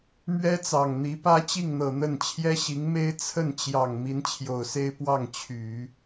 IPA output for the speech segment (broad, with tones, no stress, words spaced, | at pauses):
mɥɛ˥t͡sɑ˨˩ŋn̪i˧˥ pä˥ t͡ɕi˥˩ŋn̪ɤ˨˩ n̪ə˥˩n t͡ɕʰjɛ˥ɕi˧˥ŋme˥ɪ̯ t͡sʰə˥˩nt͡ɕjɑ˨˩ŋ mi˧˥nt͡ɕʰjo˨˩ʊ̯se˥ɪ̯ pwɑ˥˩ŋt͡ɕʰy˨˩˦